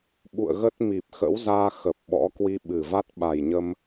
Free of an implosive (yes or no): no